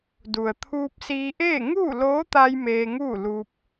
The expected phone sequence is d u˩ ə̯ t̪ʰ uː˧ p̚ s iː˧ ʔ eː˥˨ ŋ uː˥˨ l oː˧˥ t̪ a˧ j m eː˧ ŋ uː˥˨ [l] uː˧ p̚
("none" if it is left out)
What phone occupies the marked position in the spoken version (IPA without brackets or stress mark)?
l